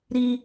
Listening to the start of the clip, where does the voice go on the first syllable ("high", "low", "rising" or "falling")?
high